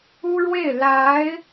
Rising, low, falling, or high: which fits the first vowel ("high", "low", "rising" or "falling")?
high